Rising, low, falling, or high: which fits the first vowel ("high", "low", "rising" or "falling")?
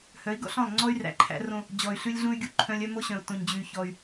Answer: rising